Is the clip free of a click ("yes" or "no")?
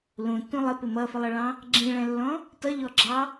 no